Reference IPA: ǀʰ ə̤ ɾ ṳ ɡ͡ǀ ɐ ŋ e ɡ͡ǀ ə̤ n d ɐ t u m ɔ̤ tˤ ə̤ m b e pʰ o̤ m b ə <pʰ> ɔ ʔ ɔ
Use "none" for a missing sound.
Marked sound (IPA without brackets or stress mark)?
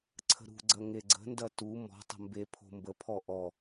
pʰ